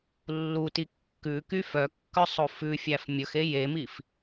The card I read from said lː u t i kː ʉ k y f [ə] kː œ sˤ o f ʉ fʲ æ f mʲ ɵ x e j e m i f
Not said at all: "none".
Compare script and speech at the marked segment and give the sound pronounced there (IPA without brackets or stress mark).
œ